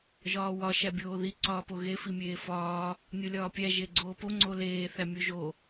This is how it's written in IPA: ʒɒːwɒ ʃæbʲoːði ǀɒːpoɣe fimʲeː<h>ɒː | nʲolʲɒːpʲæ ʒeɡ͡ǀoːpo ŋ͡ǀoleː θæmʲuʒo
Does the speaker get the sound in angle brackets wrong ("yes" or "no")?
yes